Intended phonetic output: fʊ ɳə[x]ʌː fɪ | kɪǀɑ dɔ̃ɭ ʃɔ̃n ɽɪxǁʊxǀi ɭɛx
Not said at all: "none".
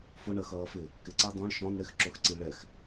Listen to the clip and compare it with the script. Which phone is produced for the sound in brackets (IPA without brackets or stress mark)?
x